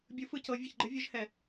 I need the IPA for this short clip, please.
bʲɯ˨˦ fɯ˨ cɤ˨˦ vʲe˨çɡ͡ǃɘ˨˦ vʲɯ˨˦ʒhɛ˨

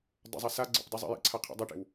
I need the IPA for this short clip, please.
dˤə̰zˤa sa ɡ͡ǀə̰p dˤazˤḛjḛǀʰa qʰḛdˤeʈḛw

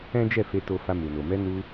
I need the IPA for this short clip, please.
ɛ̃˦d͡ʒɛ˦˨fe˧ to˧ fa˧mu˨no˨ mɛ˧nu˧

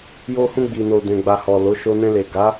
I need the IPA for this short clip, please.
jo˧hũ˧ɡ͡bi˨no˨ dɛ̃˨ɡ͡ba˨hɔ˨ lo˨˦ʃo˧ nɛ̃˧le˨ɡa˨˦

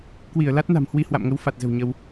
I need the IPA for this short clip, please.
kwi˧˩ə̯la˦˥t̚ na̤˨˩mhwi˧hwa̰˧˨mŋə˨˦w fa˨˩t̚zə̤˨˩w ɲə˧w

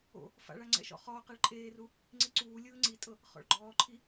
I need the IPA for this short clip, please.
o̰ | fa̰ɭa ŋ͡ǀɛ̰ʃɔ̰χɔːqɛɭ ǃʼeːru | ŋ͡ǀiǀuːlʲɯː ŋ͡ǀitʼɤ | χɔ̰ɭɡ͡ǃɔːǃʰi

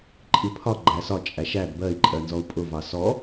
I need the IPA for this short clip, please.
ǃʼipʰɒ ɡ͡ǃæsɒ t͡ʃʼæʃæd bɜi̯ ǃʼɜnzɔu̯pʼʊ vɑsɔ

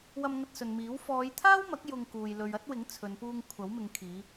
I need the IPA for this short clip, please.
wɐ˧mŋɐ˧t̚sɵ˨nmiː˨˥w fɔː˨˧jt̪ʰaː˥wmɐ˨˥k̚ jʊ˧ŋkuː˨j lɵ˨ɥɐ˥t̚wɪ˨˥ŋ t͡sʰɵ˨˧npuː˧ŋ kʷʰɐ˨˥wmɪ˨˧ŋ kʰiː˨˧

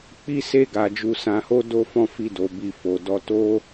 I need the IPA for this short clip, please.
k͡pi˧se˧ɡa˨ d͡ʒu˧sã˧ho˦ do˦fɔ̃˦˨ fi˧do˨ bi˧fo˨dɔ˧ to˦

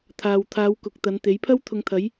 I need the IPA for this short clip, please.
t̪ʰaː˨wt̪ʰaː˨˧wkʊ˨k̚ t̪ɐ˨˧nt̪e˨˥jpʰɐ˥w t̪ʰʊ˨ŋt̪ʰɐ˨˧j

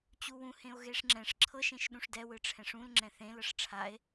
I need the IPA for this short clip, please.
t͡ɕuwũ hẽo̯ɣeʂŋ͡ǁɛ̃ʂ ǁʰɤ ʃẽʃɗũʂdɛ wɯʈ͡ʂʰɛ̃ʂũl ŋ͡ǁɛ̃θẽl ɤʂʈ͡ʂʰae̯

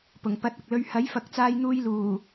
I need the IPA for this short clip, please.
pʊ˨˩ŋ pɐ˨˥t̚ɐ˨k̚lɵ˧ɥ hɐ˨˥jfɐ˨˥k̚t͡saː˧j n̪uː˧jluː˨˩

